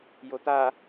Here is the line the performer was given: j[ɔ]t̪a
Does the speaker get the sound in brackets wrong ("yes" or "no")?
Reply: yes